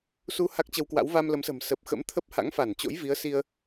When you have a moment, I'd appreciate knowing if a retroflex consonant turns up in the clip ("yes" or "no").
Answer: no